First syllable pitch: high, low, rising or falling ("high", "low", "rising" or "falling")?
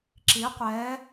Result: rising